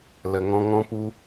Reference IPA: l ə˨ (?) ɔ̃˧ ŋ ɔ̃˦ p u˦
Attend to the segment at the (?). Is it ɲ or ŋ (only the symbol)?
ŋ